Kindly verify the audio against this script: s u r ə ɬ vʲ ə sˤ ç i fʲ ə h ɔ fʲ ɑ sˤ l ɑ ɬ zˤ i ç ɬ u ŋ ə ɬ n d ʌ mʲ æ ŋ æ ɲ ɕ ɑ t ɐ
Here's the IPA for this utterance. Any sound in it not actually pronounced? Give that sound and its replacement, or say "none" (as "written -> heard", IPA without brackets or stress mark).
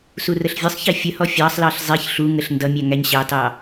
ɐ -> ɑ